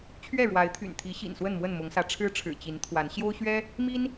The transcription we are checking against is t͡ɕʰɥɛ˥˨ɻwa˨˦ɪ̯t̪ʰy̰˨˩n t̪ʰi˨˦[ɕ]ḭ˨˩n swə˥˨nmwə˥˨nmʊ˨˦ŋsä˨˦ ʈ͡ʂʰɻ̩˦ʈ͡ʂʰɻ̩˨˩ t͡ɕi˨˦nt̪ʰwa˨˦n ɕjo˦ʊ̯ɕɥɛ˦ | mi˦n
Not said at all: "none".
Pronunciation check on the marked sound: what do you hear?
ɕ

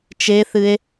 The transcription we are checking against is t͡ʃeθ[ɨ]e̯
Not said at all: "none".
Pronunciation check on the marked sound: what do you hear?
ɨ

